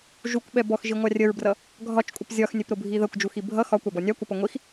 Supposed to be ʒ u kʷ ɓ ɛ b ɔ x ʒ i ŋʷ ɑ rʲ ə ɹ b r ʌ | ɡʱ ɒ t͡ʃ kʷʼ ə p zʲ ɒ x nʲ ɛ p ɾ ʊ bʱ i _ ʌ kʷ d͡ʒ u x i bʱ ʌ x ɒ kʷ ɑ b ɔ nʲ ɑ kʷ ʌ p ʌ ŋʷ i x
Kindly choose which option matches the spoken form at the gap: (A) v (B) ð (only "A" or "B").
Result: B